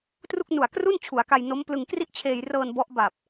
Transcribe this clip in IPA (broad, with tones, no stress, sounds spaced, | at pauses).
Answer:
t r u˥˩ k̚ n u˨˩ a̯ k r u˥˩ n t͡ɕʰ u˩˦ a̯ k a˧ j n o˦˥ m p l ɯ˧ ŋ k r i˥˩ ʔ t͡ɕʰ eː˧ j r ɤː˧ n b ɔ˦˥ ʔ b a˨˩ p̚